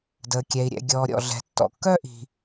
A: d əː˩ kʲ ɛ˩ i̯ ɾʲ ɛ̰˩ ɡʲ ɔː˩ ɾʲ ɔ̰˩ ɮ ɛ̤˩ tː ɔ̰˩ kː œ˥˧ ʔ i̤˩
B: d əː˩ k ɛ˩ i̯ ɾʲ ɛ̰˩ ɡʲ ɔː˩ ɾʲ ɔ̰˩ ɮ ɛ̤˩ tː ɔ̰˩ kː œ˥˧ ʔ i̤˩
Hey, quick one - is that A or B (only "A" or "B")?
A